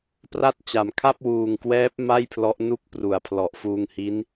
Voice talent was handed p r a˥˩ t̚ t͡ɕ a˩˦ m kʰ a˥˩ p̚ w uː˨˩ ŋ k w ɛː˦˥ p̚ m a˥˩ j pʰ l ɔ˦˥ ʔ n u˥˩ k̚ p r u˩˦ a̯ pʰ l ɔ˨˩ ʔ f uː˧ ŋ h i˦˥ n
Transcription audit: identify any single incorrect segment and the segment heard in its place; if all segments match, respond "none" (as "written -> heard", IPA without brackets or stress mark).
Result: none